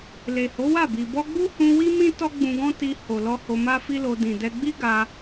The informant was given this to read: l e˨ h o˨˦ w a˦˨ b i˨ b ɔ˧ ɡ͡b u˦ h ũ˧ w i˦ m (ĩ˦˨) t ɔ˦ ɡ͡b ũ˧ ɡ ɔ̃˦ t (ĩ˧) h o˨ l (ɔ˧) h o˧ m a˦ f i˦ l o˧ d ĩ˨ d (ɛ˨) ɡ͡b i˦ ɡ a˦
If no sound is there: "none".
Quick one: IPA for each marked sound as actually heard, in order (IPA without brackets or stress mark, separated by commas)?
ĩ˦, i˧, ɔ˧, ɛ˧